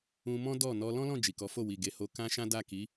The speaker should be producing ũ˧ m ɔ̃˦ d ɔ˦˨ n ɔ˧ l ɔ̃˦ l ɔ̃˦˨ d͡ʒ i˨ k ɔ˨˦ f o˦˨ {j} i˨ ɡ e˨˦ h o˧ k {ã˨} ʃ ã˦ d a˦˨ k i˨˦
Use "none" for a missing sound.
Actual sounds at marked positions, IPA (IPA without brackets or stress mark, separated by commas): w, ã˦